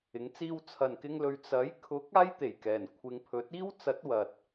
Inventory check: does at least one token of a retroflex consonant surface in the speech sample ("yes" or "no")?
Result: no